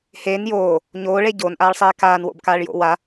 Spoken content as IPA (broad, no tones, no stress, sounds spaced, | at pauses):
h e n j oː | ɲ oː ɭ e ɟ o n ʔ aː ɭ sˤ eː k aː n w o̰ b k aː ɭ j o̰ w a